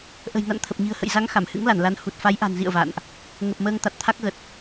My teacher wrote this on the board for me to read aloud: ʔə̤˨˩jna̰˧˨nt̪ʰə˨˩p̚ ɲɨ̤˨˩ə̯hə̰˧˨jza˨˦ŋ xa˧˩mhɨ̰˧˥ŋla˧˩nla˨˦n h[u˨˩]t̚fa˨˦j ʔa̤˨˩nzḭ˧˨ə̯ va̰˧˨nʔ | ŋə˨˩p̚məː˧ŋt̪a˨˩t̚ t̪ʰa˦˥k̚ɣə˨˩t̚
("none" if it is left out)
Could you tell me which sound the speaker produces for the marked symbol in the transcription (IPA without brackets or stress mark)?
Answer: u˨˩